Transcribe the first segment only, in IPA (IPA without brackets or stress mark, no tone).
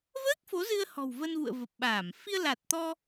v